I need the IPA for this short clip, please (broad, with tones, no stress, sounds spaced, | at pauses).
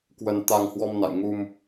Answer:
k w ə˧ n t̪ a˧ ŋ h w ɔ˧ m n a̰˧˨ j ŋ u˧ m